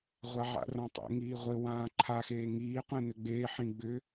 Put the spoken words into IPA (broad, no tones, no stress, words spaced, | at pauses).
ʁʷaʕa̰rãtˤḛ ŋiːʁʷɘ wãːǃʰa xeːŋiː qʷẽnʏɡ͡beː ħĩɡ͡bʏ